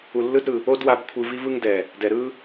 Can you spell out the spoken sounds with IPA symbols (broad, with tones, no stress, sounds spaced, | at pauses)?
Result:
u˨ lː ɯ˦ d ɾ ɯ˨ | o˦ d w a˧ b kʷʰ ɯ˧ v i˦ v ɯ˦ ŋ d ɛ˨ | d ɛ˨ ɾ ɯ˦